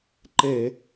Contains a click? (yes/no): yes